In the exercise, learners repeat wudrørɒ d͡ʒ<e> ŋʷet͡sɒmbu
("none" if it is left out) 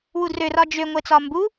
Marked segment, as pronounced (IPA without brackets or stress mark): ø